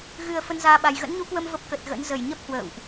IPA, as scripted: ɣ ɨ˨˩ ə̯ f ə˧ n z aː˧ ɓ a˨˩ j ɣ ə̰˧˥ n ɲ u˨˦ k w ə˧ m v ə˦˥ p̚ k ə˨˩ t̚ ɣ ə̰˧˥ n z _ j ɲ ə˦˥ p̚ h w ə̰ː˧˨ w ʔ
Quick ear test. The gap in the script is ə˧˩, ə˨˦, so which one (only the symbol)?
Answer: ə˧˩